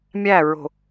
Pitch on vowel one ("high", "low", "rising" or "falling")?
falling